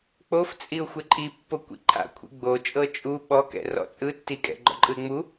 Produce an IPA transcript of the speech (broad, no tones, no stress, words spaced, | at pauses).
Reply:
k͡poft͡sʼiʊ̯ xʷeǃʼipːo kʷḭǃʰa̰ kʷʰḭɡ͡bot͡ʃʼɤ t͡ʃʼu ɓɔkɛ̰rɔ̰ t͡sʼɯtːikʼɛ̰ ɡ͡ǃɔ̰ǃʼɯɪ̯ŋ͡mu